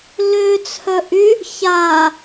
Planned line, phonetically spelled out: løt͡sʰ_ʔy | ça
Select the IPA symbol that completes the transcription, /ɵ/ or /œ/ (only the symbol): œ